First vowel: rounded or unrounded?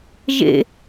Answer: unrounded